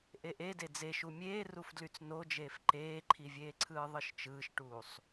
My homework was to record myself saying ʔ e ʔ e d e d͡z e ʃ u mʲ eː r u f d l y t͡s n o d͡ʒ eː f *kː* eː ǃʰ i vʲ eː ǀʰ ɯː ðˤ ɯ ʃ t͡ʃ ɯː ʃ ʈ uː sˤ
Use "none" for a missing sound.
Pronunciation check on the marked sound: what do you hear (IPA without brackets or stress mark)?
ǃ